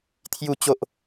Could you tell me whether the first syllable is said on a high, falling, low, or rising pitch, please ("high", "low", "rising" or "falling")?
low